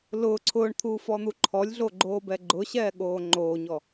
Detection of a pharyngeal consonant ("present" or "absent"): absent